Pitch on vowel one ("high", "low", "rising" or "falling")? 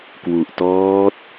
low